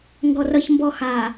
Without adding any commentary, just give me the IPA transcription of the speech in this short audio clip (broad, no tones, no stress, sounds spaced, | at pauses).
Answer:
ŋ ɡ ɔ r ʌ ç m b ɔ x a